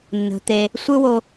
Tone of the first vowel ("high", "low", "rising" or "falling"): low